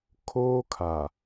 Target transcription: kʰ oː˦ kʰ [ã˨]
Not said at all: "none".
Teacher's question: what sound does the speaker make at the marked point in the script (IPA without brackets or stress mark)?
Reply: a˨